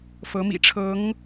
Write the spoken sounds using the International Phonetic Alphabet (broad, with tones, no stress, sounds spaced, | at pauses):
f ɤ˧˥ m ḭ˨˩ ʈ͡ʂʰ ɤ˧˥ ŋ